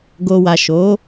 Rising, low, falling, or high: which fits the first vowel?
low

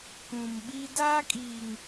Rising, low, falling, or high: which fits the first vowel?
low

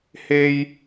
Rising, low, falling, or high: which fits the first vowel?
high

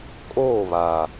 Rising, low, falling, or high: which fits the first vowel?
falling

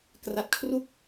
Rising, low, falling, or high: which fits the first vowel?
low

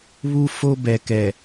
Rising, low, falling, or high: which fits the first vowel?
high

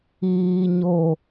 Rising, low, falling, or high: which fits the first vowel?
high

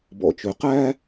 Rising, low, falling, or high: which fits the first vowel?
low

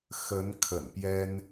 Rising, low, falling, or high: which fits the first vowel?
rising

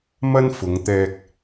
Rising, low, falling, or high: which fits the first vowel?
high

